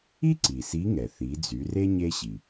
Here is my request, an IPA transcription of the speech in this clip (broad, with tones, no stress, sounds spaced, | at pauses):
i˥ ǀ i˩ s i˧˥ ŋ ɛ˩ θ i˩˧ d͡z y˩˧ r e˥ ɲ e˧ ɕ i˩